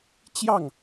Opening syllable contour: falling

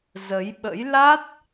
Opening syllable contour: rising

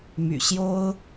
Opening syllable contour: low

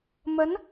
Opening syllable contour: rising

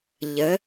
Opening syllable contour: rising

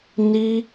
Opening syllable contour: high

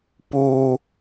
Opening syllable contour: high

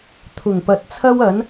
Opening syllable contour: low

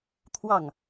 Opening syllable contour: falling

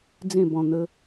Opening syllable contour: falling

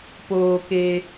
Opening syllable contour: low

